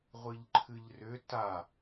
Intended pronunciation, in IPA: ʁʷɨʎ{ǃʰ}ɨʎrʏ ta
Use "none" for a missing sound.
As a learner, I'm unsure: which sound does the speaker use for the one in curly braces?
ǃʰ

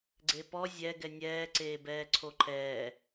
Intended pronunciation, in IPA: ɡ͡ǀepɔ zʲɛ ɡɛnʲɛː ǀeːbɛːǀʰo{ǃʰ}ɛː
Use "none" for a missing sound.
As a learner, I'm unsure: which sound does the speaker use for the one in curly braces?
ǃʰ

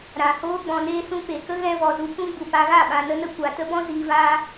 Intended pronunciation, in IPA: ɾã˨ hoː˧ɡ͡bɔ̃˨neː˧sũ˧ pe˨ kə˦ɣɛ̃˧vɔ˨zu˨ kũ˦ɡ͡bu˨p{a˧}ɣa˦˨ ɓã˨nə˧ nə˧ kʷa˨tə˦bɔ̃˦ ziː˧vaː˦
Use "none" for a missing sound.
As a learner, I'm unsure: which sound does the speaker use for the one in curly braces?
a˧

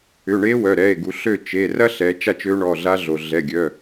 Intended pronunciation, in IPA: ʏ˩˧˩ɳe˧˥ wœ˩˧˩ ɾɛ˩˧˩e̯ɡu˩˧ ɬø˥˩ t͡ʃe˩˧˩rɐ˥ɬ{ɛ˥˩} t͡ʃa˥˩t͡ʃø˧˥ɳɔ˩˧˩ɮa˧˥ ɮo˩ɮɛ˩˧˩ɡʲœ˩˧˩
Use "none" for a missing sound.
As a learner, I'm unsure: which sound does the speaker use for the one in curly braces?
ɛ˩˧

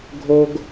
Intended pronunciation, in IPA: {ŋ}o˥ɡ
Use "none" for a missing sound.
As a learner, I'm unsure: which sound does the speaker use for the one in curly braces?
ɡʱ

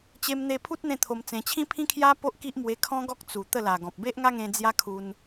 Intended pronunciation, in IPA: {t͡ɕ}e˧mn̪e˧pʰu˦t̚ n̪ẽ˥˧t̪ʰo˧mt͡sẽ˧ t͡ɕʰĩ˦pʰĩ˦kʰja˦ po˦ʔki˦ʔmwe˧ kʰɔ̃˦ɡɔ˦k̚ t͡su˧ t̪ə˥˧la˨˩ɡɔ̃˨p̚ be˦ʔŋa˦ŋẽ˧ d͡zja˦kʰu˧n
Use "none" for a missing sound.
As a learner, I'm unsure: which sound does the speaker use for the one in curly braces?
t͡ɕ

